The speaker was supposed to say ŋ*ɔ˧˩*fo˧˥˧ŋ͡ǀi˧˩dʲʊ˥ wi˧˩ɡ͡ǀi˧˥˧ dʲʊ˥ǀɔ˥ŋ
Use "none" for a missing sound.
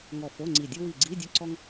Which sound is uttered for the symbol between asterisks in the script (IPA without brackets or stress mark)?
ɔ˧˩